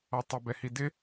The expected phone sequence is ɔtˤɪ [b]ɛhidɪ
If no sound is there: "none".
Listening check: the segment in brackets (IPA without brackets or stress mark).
b